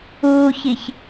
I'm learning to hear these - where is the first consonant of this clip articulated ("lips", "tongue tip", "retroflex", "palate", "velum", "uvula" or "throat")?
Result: palate